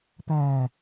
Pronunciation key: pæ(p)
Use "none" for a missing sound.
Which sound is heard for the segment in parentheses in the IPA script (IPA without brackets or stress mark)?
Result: none